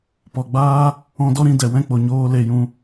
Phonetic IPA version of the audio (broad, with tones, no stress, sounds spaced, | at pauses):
p ɔ˨ ɡ͡b aː˦ | ɔ̃˧ d ɔ˦ ɾ ĩ˧ d ɛ˨ w ɛ̃˦ k͡p o˨ ɲ oː˧ l e˧ j ũ˧